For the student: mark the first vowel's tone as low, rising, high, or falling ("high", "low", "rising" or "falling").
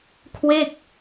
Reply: falling